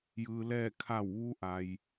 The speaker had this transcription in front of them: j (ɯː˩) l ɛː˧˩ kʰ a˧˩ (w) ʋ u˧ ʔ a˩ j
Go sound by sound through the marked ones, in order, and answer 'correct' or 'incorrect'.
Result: correct, correct

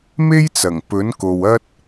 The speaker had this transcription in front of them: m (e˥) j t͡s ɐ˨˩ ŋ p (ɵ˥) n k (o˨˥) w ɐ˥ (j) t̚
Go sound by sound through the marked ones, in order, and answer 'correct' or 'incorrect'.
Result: correct, incorrect, incorrect, incorrect

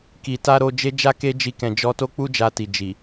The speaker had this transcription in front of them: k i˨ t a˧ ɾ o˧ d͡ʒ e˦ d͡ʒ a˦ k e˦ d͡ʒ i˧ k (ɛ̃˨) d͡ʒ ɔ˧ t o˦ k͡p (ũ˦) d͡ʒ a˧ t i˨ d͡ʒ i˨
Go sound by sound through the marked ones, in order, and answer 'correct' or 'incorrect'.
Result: correct, incorrect

